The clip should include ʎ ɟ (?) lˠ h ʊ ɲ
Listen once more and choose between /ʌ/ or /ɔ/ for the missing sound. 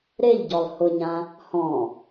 ɔ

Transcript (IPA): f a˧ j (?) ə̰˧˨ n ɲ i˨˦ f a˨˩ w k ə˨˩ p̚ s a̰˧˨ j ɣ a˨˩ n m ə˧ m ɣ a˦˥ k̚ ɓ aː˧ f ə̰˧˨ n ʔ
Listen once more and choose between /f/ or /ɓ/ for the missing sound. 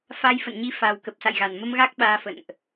f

